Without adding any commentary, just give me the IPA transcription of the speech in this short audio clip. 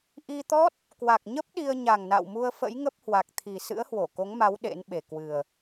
ʔ i˧ t̪ ɔ˦˥ t̚ | k w a˨˩ k̚ ɲ ə˦˥ p̚ ɗ i˧ ə̯ ɲ a˨˩ ŋ n a̰˧˨ w m u˧ ə̯ f ə̰˧˥ j ŋ ə˦˥ p̚ h w a˨˩ k̚ t̪ʰ i˨˩ s ɨ̰˧˥ ə̯ h w o˧˩ k o˨˦ ŋ m a˨˦ w ɗ ḛ˧˥ n ɓ e˨˩ k w ɨ˨˩ ə̯

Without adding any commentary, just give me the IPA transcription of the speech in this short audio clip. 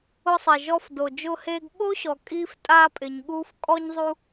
ʊ˧ sˤ ɛ˩ ʒ ɔ˧ f d o˩ d͡ʒ ʊː˧ h eː˧ ɡ ɓ o˥ ɕ ɔ˩ kʼ iː˧ f tʼ aː˧ pʼ ɪ˩ ɲ ɠ uː˧ f kʼ ɔ˧ ɲ zˤ u˧

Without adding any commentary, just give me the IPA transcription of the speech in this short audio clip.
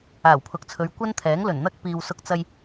aː˨˩ w pʰ ʊ˨ k̚ t͡sʰ ɵ˨˧ ɥ kʷ ɐ˥ n t̪ʰ ɛː˨˥ ŋ l ɵ˨˩ n n̪ ɐ˥ k̚ p iː˨ w s ʊ˧ k̚ t͡s ɐ˧ j

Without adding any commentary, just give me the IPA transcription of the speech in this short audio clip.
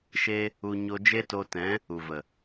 ʃ e˧ | u˧ ɲ o˧ d͡ʒ e˦ t o˧ t ɛ̃˨˦ | u˨ v ə˨

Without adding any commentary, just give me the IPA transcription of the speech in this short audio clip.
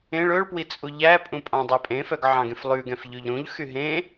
ẽ ɭ ɵ ɭ p w i t͡sʼ u ʎ æ pʼ ũ pʼ ɑ̃ dˤ æ pʼ ẽ f œ ɡ ʕ ɑ̃ ɡ ẽ f lˠ ʉ ɡ ɛ̃ f ʎ ʉ ʎ ɾ ũ ʎ x y ɦ ẽ

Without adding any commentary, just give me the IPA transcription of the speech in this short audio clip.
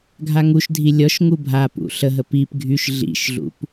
ɡʱ a ŋ u ʃ dʱ i lʲ ɔ ʃ ŋ u bʱ a p ṵ ɬ ə ɦ ə p i p ɡʱ y ʃ ɮ ḭ ʃ ɮ ṵ p

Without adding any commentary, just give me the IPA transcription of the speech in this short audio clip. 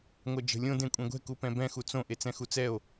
ŋʷ ɛ d͡ʒ ə̤ lʲ õ d ẽ kʷʼ ẽ ɡʷ ɛ̤ k u p ɛ̃ b ɛ̃ x u t͡s õ ʔ e t͡s ɛ̃ x u t͡s ɛ o̯

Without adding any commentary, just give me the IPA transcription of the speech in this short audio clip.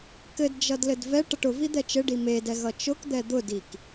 k ɘ d d͡ʒ ʌ d l ɘ d v ɛ ʈ ʌ ʈ ʊ v i d̪ ɛ t͡ʃ ɘ ɖ i m e d ɛ ɣ ʌ t͡ʃ ʊ k d̪ ɛ d̪ ʊ d i k

